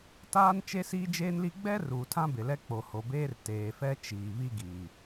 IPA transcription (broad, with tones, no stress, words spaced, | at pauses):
taː˦n t͡ʃe˦siː˦d͡ʒeː˦nli˦ ɡ͡bɛ˦ ruː˨tʰã˦bɪ˨lɛ˦ k͡po˨ho˨beː˦r teː˨fɛ˦t͡ʃiː˨ βi˦ɡiː˨